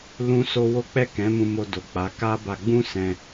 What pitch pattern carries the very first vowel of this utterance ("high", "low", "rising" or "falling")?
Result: high